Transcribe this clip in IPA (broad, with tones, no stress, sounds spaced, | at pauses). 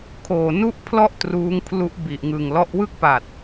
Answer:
kʰ oː˨˩ n u˥˩ ʔ pʰ l ɔ˥˩ ʔ t r uː˦˥ ŋ pʰ l u˦˥ ʔ b i˨˩ ʔ ŋ ɯː˨˩ ŋ l ɔ˦˥ ʔ w ɯ˥˩ k̚ p a˨˩ t̚